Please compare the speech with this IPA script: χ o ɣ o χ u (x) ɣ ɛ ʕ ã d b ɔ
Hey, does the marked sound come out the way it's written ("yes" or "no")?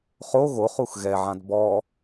yes